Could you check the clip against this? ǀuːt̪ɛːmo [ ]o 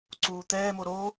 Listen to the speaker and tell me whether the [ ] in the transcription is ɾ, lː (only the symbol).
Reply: ɾ